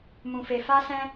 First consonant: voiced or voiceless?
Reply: voiced